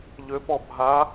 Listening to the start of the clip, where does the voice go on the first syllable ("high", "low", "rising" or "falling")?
rising